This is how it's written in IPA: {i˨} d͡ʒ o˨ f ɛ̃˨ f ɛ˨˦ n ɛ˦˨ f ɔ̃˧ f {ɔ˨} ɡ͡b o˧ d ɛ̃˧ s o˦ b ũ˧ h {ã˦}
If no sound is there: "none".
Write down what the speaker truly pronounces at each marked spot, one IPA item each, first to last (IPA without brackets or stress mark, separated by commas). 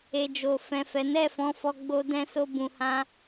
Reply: e˨, ɔ˧, ã˦